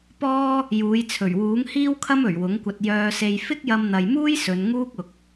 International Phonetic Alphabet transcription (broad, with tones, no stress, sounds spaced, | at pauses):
p ɔː˥ | j uː˨˧ j t͡sʰ ɵ˨˩ ɥ w uː˨˥ ŋ h iː˥ w kʰ ɐ˥ m ɵ˨˩ ɥ w ʊ˨˥ ŋ kʷ ɐ˧ t̚ j œː˧ s e˧ j f ɪ˥ k̚ j ɐ˧ m n̪ ɐ˨ j m uː˥ j s ɵ˨˧ n ŋ uː˥ k̚ ʊ˨ k̚